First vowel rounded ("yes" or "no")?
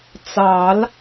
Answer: no